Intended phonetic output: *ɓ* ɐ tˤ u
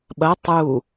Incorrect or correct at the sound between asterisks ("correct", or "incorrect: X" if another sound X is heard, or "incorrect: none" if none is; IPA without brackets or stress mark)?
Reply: correct